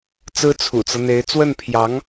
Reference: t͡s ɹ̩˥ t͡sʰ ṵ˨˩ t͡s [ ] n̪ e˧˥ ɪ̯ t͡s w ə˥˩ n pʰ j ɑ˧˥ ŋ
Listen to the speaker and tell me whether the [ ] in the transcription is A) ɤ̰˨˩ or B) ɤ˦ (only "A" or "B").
B